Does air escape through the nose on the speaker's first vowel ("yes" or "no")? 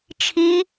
no